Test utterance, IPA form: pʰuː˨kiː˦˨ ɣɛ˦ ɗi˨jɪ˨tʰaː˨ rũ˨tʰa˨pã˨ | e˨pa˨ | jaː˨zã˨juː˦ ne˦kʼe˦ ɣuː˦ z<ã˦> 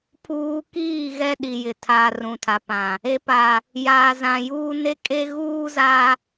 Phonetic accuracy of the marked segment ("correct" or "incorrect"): incorrect